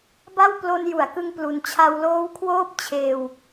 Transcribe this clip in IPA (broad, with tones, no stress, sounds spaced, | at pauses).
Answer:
b a˥˩ w p l o˧ n j u˩˦ a̯ k ɯ˧ ŋ p l u˨˩ n t͡ɕʰ a˧ w l oː˦˥ w kʰ w oː˥˩ p̚ t͡ɕʰ eː˧ w